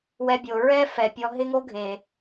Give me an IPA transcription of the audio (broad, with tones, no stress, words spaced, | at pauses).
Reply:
wɛ˧bʲo˨ ɹɛ˦ fɛ˨ pʲɔ˧ɦɪ˦ŋo˦ɡʱe˨